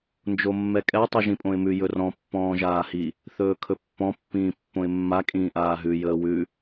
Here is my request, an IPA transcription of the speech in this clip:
n d͡ʒ o mː ɛ kʼ ɛ tˤ y ʒ ĩ pʼ õ ɪ̯ m ʉ j ɵ r ɔ̃ pː ɔ̃ː ʒ aː h i | θ ɵː kʰ ɵ pː ɔ̃ pː ĩː pː õ ɪ̯ mː a kʼ ĩː ʔ aː ɦ ʉ j əː w ʉ

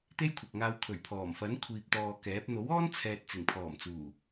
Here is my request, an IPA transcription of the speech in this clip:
t̪ e˥ j kʷʰ ɐ˨ k̚ ŋ aː˧ w kʰ ɵ˨˩ ɥ pʰ ɔː˨˩ m f ɐ˨˥ n kʷʰ iː˨ p̚ t̪ ɔː˨ k ɛː˨˥ p̚ n̪ o˨˥ w ɔː˥ n t͡sʰ ɛː˨ t̚ t͡s ɪ˨˩ ŋ pʰ ɔː˨˩ m t͡s uː˨˩

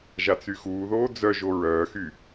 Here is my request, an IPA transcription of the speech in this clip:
ʒ a t͡s y x uː ð oː d͡z œ ʒ o ɹ œː x y

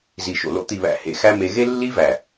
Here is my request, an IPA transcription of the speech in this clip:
z i˨ ʃ o̰˨ l o̰˧ t̪ i˨ β æ̰˨ h ḛ˨ x æ˦ m e˧ ɣ e˦ lː i˦ v æ˨

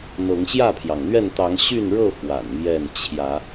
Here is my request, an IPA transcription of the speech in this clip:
n̪ ɤ˨˦ ŋ ɕ j ä˥˨ pʰ j ɑ˩ ŋ n̪ ɥ ɛ˥˨ n t̪ ɑ˨˦ ŋ ɕ y˥˨ n ɻ ɤ˥˨ x w a̰˨˩ n m j ɛ˥˨ n t͡ɕʰ j ä˨˦

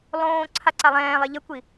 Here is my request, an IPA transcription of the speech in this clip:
lˠ õː ǀʰ a ǀ a lˠ ɛ̃ː lˠ e ʎ ə kʷ i

